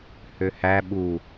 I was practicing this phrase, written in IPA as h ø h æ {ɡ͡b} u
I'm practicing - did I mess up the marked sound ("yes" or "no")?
yes